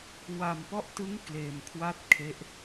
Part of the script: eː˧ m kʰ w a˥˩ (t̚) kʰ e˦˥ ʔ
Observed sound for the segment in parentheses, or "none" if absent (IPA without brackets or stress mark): t̚